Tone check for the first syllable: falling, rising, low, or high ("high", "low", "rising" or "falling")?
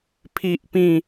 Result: high